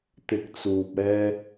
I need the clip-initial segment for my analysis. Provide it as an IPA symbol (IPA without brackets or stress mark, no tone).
t̪